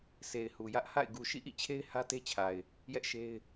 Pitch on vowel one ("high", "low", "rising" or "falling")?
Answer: low